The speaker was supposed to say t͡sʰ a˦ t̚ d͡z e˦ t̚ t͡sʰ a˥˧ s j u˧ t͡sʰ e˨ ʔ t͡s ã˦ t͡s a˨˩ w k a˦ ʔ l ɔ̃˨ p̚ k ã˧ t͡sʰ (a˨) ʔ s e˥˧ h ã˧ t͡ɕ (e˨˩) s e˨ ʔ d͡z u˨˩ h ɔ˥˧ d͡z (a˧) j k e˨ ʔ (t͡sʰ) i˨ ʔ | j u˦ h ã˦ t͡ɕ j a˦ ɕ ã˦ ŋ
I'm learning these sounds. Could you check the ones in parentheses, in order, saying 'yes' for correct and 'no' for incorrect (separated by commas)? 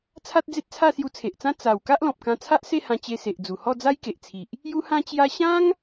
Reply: no, no, no, yes